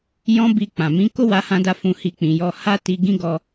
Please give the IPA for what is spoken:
j ɔ̃˦ b i˧ k͡p ã˨ m ĩ˨˦ k o˦ w a˧ h ã˧ d a˧ f ũ˧ h i˧ k͡p ĩ˨ j ɔ˧ h a˦ t i˧ ɡ ĩ˦ ɡ ɔ˧

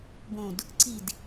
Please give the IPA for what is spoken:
b õ d | ǀ i d

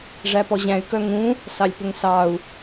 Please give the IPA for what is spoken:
ʐ æ p ɔ ʑ æ̃ y̯ k œ ŋ ũ | s ɑ lʲ p ɵ ŋ s ɑ u̯

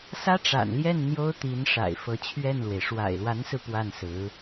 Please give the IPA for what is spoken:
s ä˥ ʈ͡ʂ a̰˨˩ n l j ɛ˥˩ n n̪ j o˥ ʊ̯ t̪ i˧˥ n ʂ a̰˨˩ ɪ̯ f ɤ˧˥ t͡ɕʰ ɥ ɛ˥˩ n l w e˩ ɪ̯ ʂ w a̰˨˩ ɪ̯ l w a˧˥ n s ɹ̩˧ p w a˥˩ n s ɹ̩˧˥

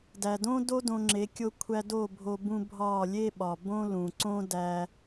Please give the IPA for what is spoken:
d æ˨ d õ˦ d o˦ d õ˧ ŋ͡ǁ e˨˦ kʲ o˦ kʷʰ æ˦ d o˦˨ bʱ o˧ b ũ˧ bʱ ɒ˦˨ lʲ e˦ ɓ ɒ˨ b õ˦ l ũ˨ ǀ õ˦ d æ˧

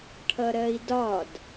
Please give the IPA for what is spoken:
ʈʰ ʌ ɾ ɜ i̯ d ɒ d

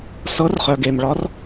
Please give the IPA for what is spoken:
s ɤ˧˥ r χ œ˨ ɡ e˨ m ɭ ɒ˧˥ r

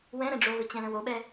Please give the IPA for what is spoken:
w ɛ̃ ɾ ɛ̃ ɖ͡ʐ o ɣ ʊ t͡ɕ ɛ̃ l ə̃ w o ɓ ɛ

